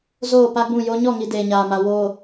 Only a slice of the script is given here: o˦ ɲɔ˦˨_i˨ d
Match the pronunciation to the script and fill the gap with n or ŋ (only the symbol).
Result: ŋ